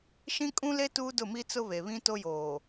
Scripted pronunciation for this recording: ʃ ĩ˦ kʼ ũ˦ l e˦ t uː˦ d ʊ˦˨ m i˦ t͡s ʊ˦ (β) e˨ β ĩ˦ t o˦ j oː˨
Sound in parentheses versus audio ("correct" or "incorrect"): correct